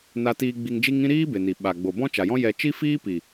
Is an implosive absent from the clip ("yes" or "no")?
no